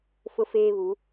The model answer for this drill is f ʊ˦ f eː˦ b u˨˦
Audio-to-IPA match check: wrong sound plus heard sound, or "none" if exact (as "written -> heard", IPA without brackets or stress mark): b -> β